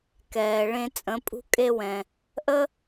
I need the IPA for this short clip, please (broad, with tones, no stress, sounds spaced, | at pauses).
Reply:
k ɛː˩ ɭ ẽ˧ t͡sʼ ə̃˩˥ pʼ ṳ˥ kʼ e˥ w ɛ̃˩ | ʔ ə˥